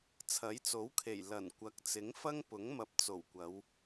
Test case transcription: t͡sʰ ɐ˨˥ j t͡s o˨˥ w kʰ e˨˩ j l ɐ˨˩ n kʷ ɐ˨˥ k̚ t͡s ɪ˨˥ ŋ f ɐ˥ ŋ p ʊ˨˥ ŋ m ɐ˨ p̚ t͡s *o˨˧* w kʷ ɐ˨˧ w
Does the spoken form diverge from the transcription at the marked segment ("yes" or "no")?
yes